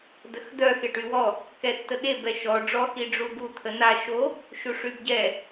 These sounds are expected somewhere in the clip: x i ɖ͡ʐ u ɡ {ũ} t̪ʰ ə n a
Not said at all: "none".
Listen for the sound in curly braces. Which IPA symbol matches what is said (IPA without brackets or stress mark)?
u